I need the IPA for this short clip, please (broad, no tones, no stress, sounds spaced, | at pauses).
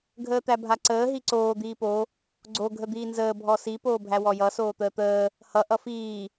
ɡʱ əː t̪ æ bʱ a ǀ əː ɦ i ǀ oː d̪ iː p o | ɡ͡ǀ o ɡʱ ə d̪ iː n z əː bʱ ɔ s i p oː bʱ æ w ɔ j ʌ s oː t̪ əː t̪ əː | h ʌ ʔ ʌ f iː